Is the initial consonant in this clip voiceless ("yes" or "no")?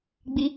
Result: no